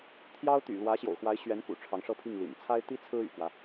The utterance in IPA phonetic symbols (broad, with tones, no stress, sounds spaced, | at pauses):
t̪ʰ j ɑ˥ ʊ̯ t̪ y̰˨˩ l w ä˧˥ ɕ j o̰˨˩ ʊ̯ x w a˧˥ ɪ̯ ɕ ɥ ɛ˧˥ n k ṵ˨˩ ʈ͡ʂʰ ɑ˧˥ ŋ ʂ ɤ˥˧ pʰ i˥˩ ŋ l ḭ˨˩ n t͡sʰ a˥ ɪ̯ t̪ i˥ t͡sʰ ɹ̩˥ y̰˨˩ k w ä˦